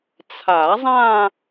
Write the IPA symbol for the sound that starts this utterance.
t͡sʰ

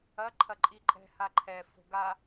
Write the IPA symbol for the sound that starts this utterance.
ɐ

